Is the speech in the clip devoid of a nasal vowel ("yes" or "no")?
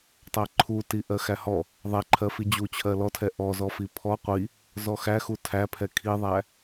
yes